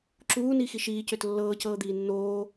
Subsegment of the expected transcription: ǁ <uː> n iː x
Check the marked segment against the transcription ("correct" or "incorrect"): correct